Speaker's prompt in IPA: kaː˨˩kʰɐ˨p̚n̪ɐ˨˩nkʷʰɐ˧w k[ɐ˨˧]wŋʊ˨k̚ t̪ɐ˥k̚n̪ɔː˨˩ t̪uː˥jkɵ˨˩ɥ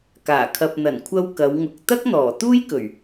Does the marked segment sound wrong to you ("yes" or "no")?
no